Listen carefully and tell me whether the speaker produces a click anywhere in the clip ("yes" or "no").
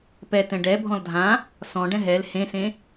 no